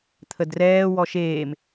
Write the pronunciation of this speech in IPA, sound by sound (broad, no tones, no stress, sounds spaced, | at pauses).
t̪ʰ ə d r ɛː w ɔ ʃ eː m